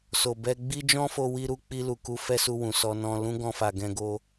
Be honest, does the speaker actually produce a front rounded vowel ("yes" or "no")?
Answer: no